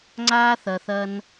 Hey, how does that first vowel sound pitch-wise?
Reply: high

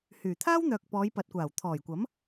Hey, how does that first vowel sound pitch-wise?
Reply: low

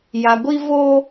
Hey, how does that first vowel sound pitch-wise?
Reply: low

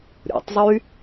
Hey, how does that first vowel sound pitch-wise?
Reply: low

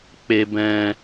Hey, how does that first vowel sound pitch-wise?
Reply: low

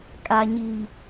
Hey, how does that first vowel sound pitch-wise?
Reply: low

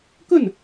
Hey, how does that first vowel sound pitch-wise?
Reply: falling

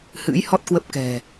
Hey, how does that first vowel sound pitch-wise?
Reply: rising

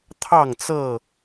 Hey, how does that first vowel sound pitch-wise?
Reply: falling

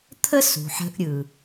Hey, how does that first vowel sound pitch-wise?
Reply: high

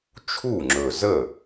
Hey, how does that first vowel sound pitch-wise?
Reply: falling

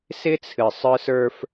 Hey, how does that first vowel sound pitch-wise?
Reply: high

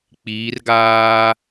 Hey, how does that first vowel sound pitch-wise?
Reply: rising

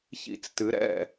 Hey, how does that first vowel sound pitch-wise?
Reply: falling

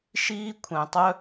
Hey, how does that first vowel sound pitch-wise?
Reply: high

